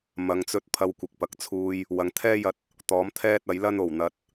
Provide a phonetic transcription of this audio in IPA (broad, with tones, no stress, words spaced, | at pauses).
mɐ˨ŋt͡sɵ˧t̚ pʰɐ˧wkʷɪ˨k̚pɐ˨k̚t͡sʰuː˧j | wɐ˨ŋt̪ʰɛː˥jɐ˧t̚ | t̪ɔː˨˥mt̪ʰɛː˥t̚ɐ˨˥jlɐ˥n o˨˩wn̪ɐ˨t̚